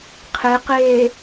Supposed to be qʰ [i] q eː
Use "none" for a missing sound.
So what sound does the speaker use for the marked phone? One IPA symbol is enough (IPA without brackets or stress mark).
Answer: e